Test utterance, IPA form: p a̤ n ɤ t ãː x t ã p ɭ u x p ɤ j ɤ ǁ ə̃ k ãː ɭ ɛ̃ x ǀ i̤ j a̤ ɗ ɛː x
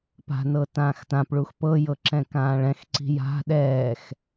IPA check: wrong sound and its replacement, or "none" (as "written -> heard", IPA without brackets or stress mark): ə̃ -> ɛ̃